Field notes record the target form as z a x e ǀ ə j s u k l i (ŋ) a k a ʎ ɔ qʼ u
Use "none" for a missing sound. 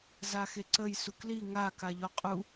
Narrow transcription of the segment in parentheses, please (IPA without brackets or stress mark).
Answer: ŋ